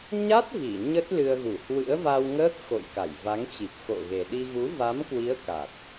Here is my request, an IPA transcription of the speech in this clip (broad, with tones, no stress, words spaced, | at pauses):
ɲa˦˥t̚ vi˧˩ɲə˦˥t̚ lɨ˧ə̯ɣu˧˩ hwɨ̰˧˥ə̯va˧wŋəː˦˥k̚ xo̰˧˨jka˧˩j va˨˦ŋt͡ɕi˨˩p̚ xo̰˧˨ɣe˨˩ɗi˧ ɣu˨˦va˨˦mkwi˨˦ə̯ ka˨˩t̚